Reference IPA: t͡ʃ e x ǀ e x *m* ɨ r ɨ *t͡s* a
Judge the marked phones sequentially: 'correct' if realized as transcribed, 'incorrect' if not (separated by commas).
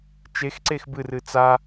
incorrect, correct